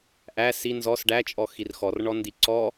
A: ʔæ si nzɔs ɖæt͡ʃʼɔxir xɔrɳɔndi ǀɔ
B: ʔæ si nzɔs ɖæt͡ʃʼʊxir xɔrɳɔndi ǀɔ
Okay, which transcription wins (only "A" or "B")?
A